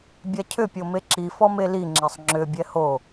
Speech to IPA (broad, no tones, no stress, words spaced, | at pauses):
bʲacʰʏ pʲomeǁi fɔmeli ŋ͡ǁɛsˤŋ͡ǁʏ bʲɛho